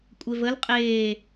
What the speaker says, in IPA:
kʷʼ e v ə l qʼ eː

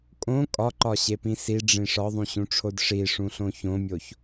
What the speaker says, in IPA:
kʼ õ kʼ ɒ ǃ ɒ ɕ e p ĩ s i ɖ͡ʐ ĩ ʂ ɒ ðˤ ũ ɕ ũ ʈ͡ʂʰ o d ʂ i ʂ ũ ɬ õ ç õ mʲ o ç

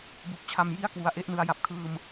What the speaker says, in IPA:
b u˨˩ k̚ t͡ɕʰ a˧ m j i˥˩ a̯ k w u˩˦ a̯ ʔ e˦˥ ʔ n ɯ˧ a̯ j a˨˩ p̚ kʰ ɯː˧ m

